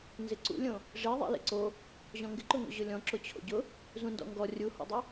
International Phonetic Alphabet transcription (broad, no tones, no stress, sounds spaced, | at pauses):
n z ɪ ǀ ṵ lʲ õ | ʐ e ðˤ ḛ l ḛ ǀ o | ʑ ɔ̃ ŋ ɡ ɪ ǃ ʊ ŋ o̰ ʑ ʊ lʲ ɔ̃ ǁ ʊ t͡ɕʰ o̰ ɟ ʊ | z ũ n d ɔ̰ ŋ ɡ ɔ rʲ u h o̰ dˤ e